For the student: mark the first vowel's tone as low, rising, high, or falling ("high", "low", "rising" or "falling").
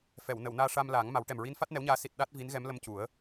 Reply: low